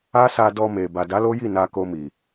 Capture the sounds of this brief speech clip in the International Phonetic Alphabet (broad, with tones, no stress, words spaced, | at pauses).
a˦sa˧dɔ˧me˨ ba˨da˨˦ lo˦ji˦˨ na˧ko˧mi˨